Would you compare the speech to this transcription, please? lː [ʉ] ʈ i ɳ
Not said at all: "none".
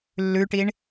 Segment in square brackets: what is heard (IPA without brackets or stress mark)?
ʉ